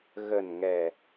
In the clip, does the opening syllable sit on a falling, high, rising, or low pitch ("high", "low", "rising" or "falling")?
low